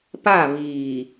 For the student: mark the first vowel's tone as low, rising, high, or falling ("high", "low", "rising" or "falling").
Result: falling